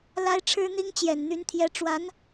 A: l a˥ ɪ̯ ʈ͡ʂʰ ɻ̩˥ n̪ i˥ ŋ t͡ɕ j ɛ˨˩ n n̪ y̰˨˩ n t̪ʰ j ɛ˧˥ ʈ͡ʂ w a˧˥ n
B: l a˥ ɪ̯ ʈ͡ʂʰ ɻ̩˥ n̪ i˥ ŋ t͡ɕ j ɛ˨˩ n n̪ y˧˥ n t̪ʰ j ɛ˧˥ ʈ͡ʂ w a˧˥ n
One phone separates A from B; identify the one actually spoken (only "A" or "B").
B